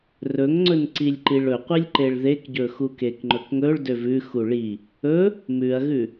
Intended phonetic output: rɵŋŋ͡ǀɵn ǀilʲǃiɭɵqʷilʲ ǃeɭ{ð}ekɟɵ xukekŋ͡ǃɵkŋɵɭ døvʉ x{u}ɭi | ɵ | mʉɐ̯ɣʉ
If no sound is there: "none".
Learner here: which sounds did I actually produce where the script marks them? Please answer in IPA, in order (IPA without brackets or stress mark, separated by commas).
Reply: ð, u